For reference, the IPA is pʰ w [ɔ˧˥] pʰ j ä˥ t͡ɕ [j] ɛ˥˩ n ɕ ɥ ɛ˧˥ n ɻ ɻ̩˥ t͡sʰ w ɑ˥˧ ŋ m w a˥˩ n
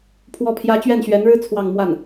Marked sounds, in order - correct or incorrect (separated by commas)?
incorrect, incorrect